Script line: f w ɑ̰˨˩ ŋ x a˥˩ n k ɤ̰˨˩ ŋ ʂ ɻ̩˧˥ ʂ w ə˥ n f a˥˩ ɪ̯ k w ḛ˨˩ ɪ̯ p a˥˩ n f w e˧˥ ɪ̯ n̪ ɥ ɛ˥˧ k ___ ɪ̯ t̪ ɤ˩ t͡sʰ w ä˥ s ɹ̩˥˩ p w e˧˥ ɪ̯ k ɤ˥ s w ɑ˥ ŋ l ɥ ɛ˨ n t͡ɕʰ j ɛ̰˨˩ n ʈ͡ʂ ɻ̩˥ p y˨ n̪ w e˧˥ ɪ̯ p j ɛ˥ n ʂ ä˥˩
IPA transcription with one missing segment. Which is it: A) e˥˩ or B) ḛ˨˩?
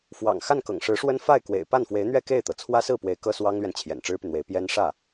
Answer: A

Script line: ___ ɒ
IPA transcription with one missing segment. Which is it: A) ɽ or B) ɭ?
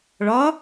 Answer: B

